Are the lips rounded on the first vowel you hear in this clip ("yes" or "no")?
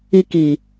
no